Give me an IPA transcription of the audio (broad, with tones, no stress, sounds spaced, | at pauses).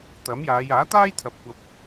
t̪ ɐ˨˥ m j aː˨˧ j aː˨˥ t̪ aː˥ j t̪ʰ ɐ˨ p̚ kʷ ɐ˧ p̚